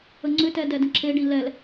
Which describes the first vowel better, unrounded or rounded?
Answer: unrounded